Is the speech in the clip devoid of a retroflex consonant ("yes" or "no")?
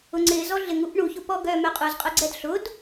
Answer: no